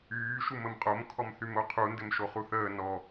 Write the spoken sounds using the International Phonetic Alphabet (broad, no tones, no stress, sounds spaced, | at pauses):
yː ʃ u m ə m qʼ o m kʰ ɔ m θ y m o qʰ u n d ɘ m ʃ o χ u θ əː n ɔ